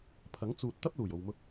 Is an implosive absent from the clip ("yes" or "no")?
yes